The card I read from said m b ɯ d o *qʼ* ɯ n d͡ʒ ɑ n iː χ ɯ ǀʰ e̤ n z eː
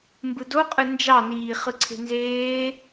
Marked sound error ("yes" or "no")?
no